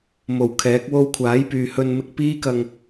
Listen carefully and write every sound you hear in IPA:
m o˨˩ w kʰ ɛː˨˥ k̚ w o˧ w kʷʰ aː˨˥ j p yː˨ h ɵ˧ n m ɪ˧ k̚ p iː˥ k ɐ˧ ŋ

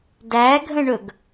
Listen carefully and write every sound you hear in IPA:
d æ ɡʱ ə̃ ɳ ɵ ɡ

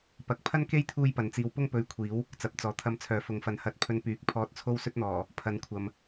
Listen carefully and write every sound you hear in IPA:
p ɐ˨˥ k̚ pʰ ɐ˥ n k e˥ j t̪ʰ uː˥ j p ɐ˨˧ n t͡s iː˧ w p ʊ˥ ŋ p ɵ˨˧ ɥ kʷʰ iː˨˥ w | t͡s ɐ˨˥ p̚ t͡s ɔː˨ t̪ʰ ɐ˧ m t͡sʰ œː˨˥ f ʊ˨ ŋ f ɐ˨˥ n h ɐ˨˥ t̚ pʰ ɵ˧ n p yː˨˥ k̚ pʰ ɔː˧ t̚ t͡sʰ o˥ w s ɵ˥ t̚ n̪ ɔː˨˩ | pʰ ɐ˨˧ n kʷʰ ɐ˨ m

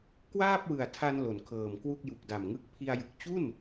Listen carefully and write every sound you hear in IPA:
k w aː˥˩ p̚ w ɯ˨˩ a̯ tʰ a˧ n l o˩˦ n kʰ ɤː˨˩ m k w u˥˩ k̚ j u˨˩ k̚ d a˨˩ m ŋ ɯ˦˥ k̚ pʰ i˧ a̯ j ɯ˨˩ k̚ t͡ɕ u˥˩ n

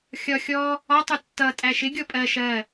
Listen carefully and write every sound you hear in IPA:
xʲ ɒ xʲ ɔ | ɒ tˤ u tː ʌ tʼ æ ʃ ɪ ɡʲ ɔ pʼ ɜ ʃ ɜ

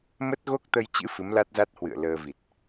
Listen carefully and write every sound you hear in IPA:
m ə˦˥ t̚ ɣ o˦˥ k̚ t̪ ə˧ j t͡ɕ ɨ̰˧˥ f ɨ˨˦ m l a˦˥ t̚ z a˦˥ t̚ h w ɨ̰˧˨ ə̯ l əː˧ v i˨˩ t̚

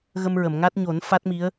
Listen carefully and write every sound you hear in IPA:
ɣ ə˧ m ɹ ə˨˩˨ m ŋ a˦˥ t̚ ɲ o˨˩˦ n f a˦˥ t̚ m i˧˥ ə̯

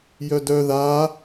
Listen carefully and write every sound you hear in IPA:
j œ d œ ð a

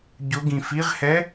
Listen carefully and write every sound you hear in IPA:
ɟ ʊ ɡ ĩ f i ʁ h ɛ

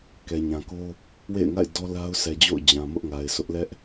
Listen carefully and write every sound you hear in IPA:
k ɛ˨ ɲ ã˨ k o˦ | w ḛ˦˨ ɪ̯ ŋ a̰˦˨ ɪ̯ d ɔ˦ l a˦ ʊ̯ s ɛ˨ d͡ʑ o̰˦˨ ʊ̯ d͡ʑ ã˨ m ʊ˦ ʔ ŋ a˨ ɪ̯ s ʊ˦ ʔ l ɛ˦ ʔ

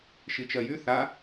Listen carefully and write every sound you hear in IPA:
ʃ i t͡ʃ ɜ j y θ a

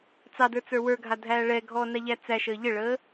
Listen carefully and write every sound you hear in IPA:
t͡s ɑ d ə˞ t͡s ə˞ w ə˞ ɡʱ a dʱ æː ɭ ɛ ɡʱ ɔː n a ʎ æ t͡s æ ʃ əː ʎ ɘ ɭ əː

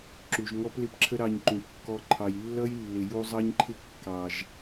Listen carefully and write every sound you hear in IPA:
ǁ u˨ ʒ ŋ ɔ˦ p l ɪ˦ p ǁʰ ə˦ ɾ ɑ˧ ɲ ǃ ũ˨ p kː ɔ˧ ǃʰ ɑ˨ j lː ʌ˦ j lː ɪ˨ j u˧ zˤ ɑ˦ ɲ ǃʰ ɪ˦ kː ɑ˨ ʒ

